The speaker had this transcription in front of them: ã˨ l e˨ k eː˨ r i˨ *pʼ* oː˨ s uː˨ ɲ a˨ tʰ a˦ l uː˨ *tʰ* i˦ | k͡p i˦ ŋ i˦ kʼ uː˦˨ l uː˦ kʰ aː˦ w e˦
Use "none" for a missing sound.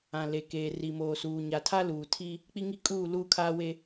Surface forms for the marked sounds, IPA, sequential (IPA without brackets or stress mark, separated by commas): m, tʰ